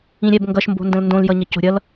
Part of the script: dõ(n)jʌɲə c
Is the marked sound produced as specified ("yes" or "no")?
no